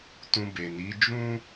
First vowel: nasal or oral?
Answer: nasal